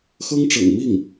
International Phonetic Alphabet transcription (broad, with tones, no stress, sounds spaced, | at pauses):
x ɤ˥ ŋ ʈ͡ʂ ɤ̰˨˩ ŋ m i˥˩ ŋ